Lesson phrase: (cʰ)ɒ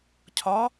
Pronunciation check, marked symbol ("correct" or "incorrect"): correct